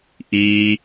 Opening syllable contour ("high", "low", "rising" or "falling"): low